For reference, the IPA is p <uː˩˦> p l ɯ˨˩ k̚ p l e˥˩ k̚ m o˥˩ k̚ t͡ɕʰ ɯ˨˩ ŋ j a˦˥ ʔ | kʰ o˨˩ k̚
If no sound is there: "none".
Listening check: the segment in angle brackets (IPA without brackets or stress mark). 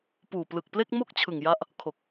uː˨˩